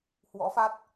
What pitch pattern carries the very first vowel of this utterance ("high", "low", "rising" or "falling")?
rising